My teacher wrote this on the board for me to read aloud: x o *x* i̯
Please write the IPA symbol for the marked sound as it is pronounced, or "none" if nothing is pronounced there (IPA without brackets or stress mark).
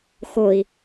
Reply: none